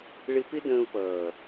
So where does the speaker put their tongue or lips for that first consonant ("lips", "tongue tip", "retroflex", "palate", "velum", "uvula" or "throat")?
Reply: retroflex